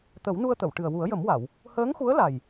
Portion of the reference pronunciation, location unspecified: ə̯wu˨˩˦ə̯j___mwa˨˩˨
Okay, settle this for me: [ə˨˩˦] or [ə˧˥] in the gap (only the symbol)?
ə˨˩˦